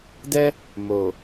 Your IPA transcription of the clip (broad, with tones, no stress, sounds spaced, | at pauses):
d ɛ˦ | m o˨